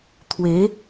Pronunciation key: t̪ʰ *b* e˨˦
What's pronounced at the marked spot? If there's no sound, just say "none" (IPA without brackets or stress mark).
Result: w